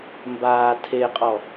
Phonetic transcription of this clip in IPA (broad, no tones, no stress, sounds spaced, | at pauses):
m b aː tʰ e qʼ ɔ